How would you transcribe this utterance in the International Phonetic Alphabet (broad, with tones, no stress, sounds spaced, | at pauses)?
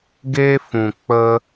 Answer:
ɡ eː˦ f ũ˨ k͡p ə˦